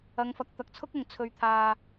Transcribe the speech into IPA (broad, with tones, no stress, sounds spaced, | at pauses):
ɐ˨˧ ŋ f ɐ˨ k̚ t̪ ɐ˨ k̚ t͡sʰ ʊ˥ k̚ ʊ˨˩ ŋ t͡sʰ ɵ˨ ɥ t̪ʰ aː˨